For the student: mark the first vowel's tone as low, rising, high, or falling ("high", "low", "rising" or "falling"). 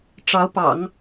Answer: rising